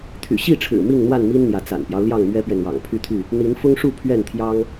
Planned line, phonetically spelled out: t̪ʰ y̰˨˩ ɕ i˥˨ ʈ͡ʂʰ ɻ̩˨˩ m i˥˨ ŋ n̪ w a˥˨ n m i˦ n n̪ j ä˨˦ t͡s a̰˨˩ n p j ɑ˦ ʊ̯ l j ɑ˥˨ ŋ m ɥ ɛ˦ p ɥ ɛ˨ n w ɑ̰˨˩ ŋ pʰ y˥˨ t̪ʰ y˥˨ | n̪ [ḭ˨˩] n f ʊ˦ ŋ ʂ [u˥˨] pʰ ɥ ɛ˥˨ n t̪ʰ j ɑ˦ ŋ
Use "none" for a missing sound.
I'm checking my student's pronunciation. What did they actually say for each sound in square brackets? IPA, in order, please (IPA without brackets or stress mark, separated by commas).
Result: i˨˦, u˥˨